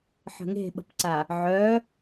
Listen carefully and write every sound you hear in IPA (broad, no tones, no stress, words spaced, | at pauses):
ħə̤ŋe̤ɓə̤pǀa | ʕœ